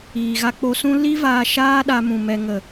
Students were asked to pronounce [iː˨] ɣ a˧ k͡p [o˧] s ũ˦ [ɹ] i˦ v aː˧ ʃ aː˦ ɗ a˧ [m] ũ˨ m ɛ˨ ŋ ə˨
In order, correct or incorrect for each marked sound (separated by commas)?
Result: correct, correct, incorrect, correct